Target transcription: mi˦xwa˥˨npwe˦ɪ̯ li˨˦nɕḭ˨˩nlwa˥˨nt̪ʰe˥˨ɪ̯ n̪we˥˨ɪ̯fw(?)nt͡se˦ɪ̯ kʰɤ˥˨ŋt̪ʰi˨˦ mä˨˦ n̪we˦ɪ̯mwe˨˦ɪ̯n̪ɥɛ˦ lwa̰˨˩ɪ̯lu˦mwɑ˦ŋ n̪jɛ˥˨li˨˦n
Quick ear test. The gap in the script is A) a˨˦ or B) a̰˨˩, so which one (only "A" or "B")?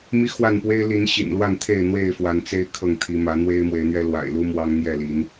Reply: A